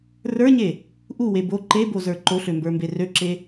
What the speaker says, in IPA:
r ə˞ ɲ e | ʔ u w e b o ǃ e b o z ə˞ ǃ o ɬ ø m b ə˞ m b e r ø ǁ e

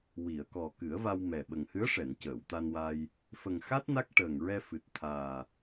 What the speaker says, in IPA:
w i˨˩˨ ə̯ k ɔ˨˩ k ɨ˨˩˦ ə̯ v a˧ w m ɛ˨˩ ɓ ə˨˩ ŋ h ɨ˧˥ ə̯ ʂ ɛ˨˩˨ n c əː˨˩˨ w t̪ a˧ n w a˧ j | f ə˨˩ ŋ x a˦˥ t̚ n a˦˥ k̚ ʈ əː˨˩ ŋ ɹ ɛ˧ f ɨ˨˩ t̚ t̪ʰ aː˨˩

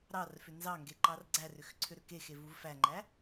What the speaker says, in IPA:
ɾ ɑ r f ʏ n z ɑ ŋ ɡ e ǃ ɑ r ɡ͡ǀ æ r ʏ x ǀʰ ʏ ɾ ʏ k e x e v u v f æ ŋ͡ǃ æ

